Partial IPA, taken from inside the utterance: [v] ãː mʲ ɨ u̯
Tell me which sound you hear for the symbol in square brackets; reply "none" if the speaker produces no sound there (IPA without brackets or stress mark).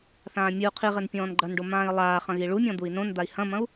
θ